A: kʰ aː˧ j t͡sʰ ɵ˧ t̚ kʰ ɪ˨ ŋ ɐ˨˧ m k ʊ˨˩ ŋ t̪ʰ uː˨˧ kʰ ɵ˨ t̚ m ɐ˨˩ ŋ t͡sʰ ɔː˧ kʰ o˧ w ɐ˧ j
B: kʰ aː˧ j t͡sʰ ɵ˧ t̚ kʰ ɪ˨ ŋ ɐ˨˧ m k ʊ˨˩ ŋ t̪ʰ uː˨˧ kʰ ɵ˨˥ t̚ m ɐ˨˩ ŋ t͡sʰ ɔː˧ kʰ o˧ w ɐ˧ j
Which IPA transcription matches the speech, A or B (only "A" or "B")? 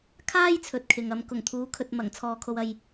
A